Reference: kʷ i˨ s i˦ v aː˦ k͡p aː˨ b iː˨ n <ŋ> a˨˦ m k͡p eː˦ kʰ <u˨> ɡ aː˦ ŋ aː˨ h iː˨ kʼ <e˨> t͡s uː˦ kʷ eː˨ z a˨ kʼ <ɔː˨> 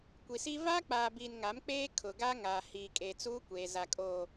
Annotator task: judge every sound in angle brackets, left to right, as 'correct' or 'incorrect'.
correct, incorrect, correct, incorrect

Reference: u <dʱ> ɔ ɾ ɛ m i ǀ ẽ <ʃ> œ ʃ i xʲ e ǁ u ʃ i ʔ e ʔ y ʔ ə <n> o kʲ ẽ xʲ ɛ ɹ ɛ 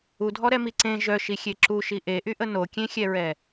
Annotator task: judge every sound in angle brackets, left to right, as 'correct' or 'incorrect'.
correct, incorrect, correct

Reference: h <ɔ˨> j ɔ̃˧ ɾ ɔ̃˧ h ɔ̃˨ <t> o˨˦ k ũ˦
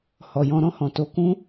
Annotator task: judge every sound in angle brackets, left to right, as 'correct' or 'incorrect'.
correct, correct

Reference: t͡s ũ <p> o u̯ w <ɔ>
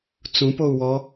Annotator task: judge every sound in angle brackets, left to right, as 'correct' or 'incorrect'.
correct, correct

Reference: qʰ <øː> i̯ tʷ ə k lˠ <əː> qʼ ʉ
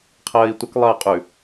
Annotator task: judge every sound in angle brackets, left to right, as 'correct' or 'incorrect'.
incorrect, correct

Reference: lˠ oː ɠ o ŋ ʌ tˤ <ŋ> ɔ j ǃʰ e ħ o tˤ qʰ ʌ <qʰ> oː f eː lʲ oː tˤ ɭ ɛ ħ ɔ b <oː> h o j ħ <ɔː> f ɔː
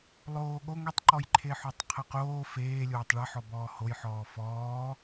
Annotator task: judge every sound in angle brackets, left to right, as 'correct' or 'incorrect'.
incorrect, incorrect, incorrect, correct

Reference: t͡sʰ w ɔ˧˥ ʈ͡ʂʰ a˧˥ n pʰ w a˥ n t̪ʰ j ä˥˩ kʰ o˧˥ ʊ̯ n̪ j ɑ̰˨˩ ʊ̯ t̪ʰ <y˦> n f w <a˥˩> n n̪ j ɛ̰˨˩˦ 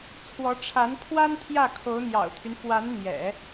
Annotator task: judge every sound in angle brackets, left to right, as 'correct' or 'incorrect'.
correct, incorrect

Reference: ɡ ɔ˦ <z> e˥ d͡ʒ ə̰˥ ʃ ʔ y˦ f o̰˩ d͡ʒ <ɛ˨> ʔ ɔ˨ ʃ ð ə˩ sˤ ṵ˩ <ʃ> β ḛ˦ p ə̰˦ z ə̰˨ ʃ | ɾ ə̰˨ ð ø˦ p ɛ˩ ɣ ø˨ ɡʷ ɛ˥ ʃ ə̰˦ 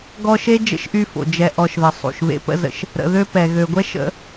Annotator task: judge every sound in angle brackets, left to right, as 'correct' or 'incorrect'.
incorrect, correct, correct

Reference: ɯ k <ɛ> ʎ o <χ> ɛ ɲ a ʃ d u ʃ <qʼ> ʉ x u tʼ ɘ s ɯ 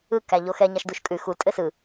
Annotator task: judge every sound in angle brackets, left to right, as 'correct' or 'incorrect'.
incorrect, incorrect, incorrect

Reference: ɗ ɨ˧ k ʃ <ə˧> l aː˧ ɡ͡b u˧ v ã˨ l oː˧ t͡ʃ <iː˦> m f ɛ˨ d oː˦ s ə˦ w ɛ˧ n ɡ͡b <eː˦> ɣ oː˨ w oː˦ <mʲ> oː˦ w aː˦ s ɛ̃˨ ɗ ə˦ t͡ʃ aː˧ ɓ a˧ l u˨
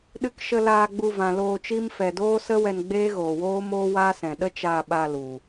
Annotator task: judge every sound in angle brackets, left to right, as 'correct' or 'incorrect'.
correct, incorrect, correct, incorrect

